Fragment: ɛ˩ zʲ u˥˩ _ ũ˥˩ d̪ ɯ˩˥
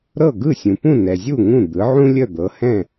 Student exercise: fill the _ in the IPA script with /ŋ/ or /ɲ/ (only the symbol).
ŋ